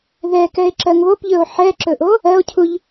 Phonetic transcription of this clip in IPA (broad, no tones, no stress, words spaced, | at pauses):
ðɛkɛe̯ ǁɜŋβopʎɵo̯ ħɛǁɵʔo | ɜo̯cʰuʎ